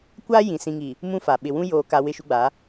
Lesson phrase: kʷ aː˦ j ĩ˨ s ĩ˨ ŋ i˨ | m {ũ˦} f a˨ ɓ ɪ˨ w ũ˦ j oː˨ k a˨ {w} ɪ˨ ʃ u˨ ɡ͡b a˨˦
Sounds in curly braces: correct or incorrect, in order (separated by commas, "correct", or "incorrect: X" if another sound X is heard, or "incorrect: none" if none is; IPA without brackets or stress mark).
correct, correct